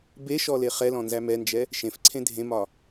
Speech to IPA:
b e ʃ ɔ l e χ ɛ l ɔ̃ n z æ m ɛ n d͡ʒ ɛ | ʃ ẽ f ǀʰ ẽ dʱ ẽ m ɒ

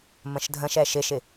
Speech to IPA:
m ə̃ ʃ dʱ ə̃ ʃ ɛ ʃ ɪ ʃ ɪ

